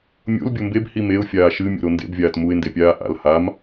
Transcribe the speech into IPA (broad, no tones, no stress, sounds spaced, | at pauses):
mʲ o̰ l bʲ o m b e b h i m e ʊ̯ fʲ aː ʃ ɨ mʲ o̰ ɾ o n d ḛ b vʲ aː t m u ɪ̯ n d e pʲ aː ʔ a̰ l h a m